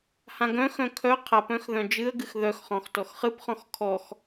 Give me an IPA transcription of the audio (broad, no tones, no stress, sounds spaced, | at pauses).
h ã ɡ œ̃ x œ̃ kʰ œ qʰ a p œ̃ x ð œ̃ d͡ʒ ɨ ə̯ ɡ ɨ x ð œ x χ ɔ̃ x t ɔ x χ ɨ p χ ɔ̃ x kʰ ɔ x